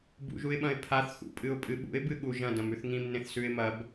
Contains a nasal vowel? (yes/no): yes